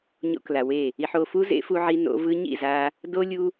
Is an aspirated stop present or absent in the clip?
absent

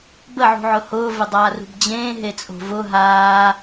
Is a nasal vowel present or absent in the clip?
present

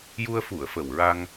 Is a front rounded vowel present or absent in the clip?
absent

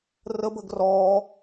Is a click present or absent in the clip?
absent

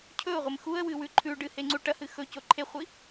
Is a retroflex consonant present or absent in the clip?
present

